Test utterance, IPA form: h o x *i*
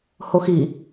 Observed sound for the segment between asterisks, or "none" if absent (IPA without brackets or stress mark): i